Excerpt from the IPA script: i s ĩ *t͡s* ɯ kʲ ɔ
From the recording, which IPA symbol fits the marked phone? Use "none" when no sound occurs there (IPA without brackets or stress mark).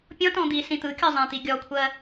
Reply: t̪